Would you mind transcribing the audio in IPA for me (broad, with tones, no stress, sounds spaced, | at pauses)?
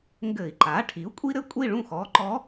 ŋ ɡ ɘ˧˩˧ i̯ ǃ a˩˥ ʈʰ i˩˥ u̯ kʷʼ i˥ ɾ ɘ˥ kʷʼ i˥˨ ɭ ũ˥˨ x ɔ˩˧˩ ǃ ɔ˧˥